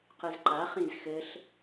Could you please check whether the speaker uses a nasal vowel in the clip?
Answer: yes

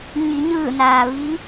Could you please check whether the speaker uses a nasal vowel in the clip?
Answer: no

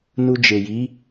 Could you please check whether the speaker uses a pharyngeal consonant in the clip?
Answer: no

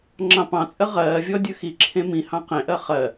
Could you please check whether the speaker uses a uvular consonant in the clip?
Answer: yes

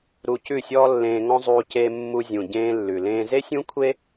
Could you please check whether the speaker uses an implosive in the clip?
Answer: no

